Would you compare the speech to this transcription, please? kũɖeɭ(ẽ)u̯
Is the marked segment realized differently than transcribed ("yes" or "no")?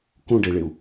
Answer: yes